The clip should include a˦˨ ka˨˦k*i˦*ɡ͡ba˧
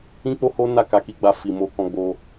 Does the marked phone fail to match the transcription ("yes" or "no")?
yes